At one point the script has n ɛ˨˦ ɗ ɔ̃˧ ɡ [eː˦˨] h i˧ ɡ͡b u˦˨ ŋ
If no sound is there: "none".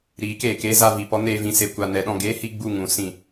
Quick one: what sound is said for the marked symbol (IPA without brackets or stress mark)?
eː˦